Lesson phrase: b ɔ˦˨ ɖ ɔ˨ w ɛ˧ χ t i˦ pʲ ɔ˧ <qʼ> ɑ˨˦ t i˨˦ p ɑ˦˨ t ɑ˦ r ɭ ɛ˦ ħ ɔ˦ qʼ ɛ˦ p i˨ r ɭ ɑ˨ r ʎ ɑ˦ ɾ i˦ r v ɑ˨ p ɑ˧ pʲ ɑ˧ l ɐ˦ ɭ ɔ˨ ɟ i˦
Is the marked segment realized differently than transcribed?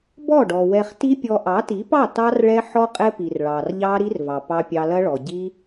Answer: yes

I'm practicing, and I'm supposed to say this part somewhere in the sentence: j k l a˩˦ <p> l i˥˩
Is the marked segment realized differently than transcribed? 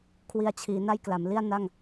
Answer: yes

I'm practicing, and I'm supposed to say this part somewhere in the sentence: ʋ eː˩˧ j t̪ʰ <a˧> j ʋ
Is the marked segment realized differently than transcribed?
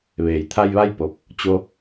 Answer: no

